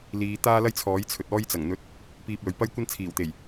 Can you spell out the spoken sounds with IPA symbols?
l iː˨˧ t̪ aː˥ l ɐ˥ j t͡sʰ ɔː˨˥ j t͡sʰ ɵ˨ t̚ ɔː˧ j t͡s ɐ˨˩ ŋ n̪ ɵ˨˥ t̚ | p iː˧ p̚ l ɵ˨ ɥ p ɐ˥ j kʷ ɐ˥ n t͡sʰ iː˨˩ w t̪ e˨˩ j

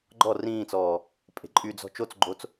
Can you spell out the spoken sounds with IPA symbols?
ɡ͡ǃ ɔ r ĩː t͡s ɔː | pʼ e̤ ǃʼ y d͡z ɔ̤ t͡ʃ o t͡s ɡ͡ǃ o t͡s

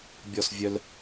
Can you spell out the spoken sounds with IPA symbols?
bʲ ɔ˥˧ s vʲ œ˥ l

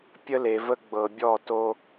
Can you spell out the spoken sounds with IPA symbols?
pʲ ə˦ l e˨ v ə˦ ɡ͡b ɤ˨ bʲ ɔ˦˨ t o˦

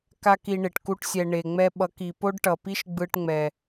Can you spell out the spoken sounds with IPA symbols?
k a˦ k i˧ ɳ e˨ ʈ k u˧ ʈ sʲ ɛ˨ ɳ e˨ ŋ͡m ɛ˧ ɓ ʌ˨˦ k i˨ p o˦ ɖ ʈ ʌ˨ p i˦ ʃ ɡ͡b ɯ˧ ʈ ŋ͡m ɛ˨

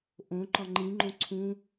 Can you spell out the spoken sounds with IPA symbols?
ʔ õ ǃ ɒ ŋ͡ǃ ĩ ŋ͡ǃ õ ǀʰ ũ

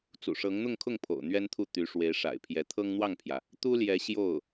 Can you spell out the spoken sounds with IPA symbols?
t͡s ṵ˨˩ ʂ ɤ˧˥ ŋ n̪ ʊ˥˧ ŋ kʰ ʊ˥˩ ŋ pʰ o̰˨˩ ʊ̯ n̪ ɥ ɛ˥ n t̪ʰ u˥˩ t̪ y˧˥ ʂ w e˧˥ ɪ̯ ʂ a̰˨˩ ɪ̯ pʰ j ɛ˧˥ t̪ʰ ɤ˥ ŋ n̪ w ɑ˥˩ ŋ pʰ j ä˩ | t̪ u˥ l j ɛ˧˥ ɕ j o˥˩ ʊ̯

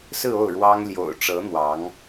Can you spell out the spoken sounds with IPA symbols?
s ɹ̩˥˧ o˥˩ ʊ̯ ɻ w ɑ˥ ŋ l j o̰˨˩ ʊ̯ ʈ͡ʂ ɤ˧˥ n̪ w ɑ˧˥ ŋ

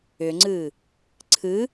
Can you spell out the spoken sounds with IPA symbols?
ʏ ŋ͡ǀ ɨ | ǀʰ ɨ

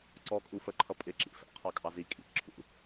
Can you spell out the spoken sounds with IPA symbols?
ǀ ɔ kʼ u f ə ǃʰ ʌ pʼ ɪ ǁ ḭ f æ̰ qʰ ɑ kʼ ɑ z i kʼ ḭ ǁʰ ṵ

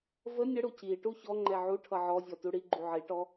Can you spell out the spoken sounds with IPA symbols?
v ə nʲ ə ɽ u c i ʈ u ç ɔ ŋ͡ǃ ɛ ʕ u ʈʰ ʌ ʕ ɔ zʲ ɔ t u ɽ i ɡ͡ǃ u ʕ i ʈ ɔ

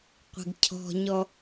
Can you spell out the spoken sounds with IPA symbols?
qʷ e̤ ɡ cʰ ɔ̤ ɲ ɔ

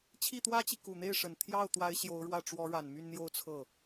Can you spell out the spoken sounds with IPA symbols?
t͡ɕʰ i˥˩ t̪ w ä˥ t͡ɕ i˨ k u˨˩ n̪ e˥˩ ɪ̯ ʂ ə˨˩ n t̪ʰ j ɑ˥˩ ʊ̯ t̪ w a˧˥ ɪ̯ ɕ j o˧˥ ʊ̯ ɻ w ä˥˩ ʈ͡ʂ w ɔ˧˥ ɻ a˨˩ n m y˥˧ n n̪ j o˥˧ ʊ̯ t͡sʰ ɤ˥˩

